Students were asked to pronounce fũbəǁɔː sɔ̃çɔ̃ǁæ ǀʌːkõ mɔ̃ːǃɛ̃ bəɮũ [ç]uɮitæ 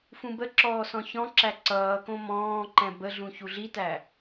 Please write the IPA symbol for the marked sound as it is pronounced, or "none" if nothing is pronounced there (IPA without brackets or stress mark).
ç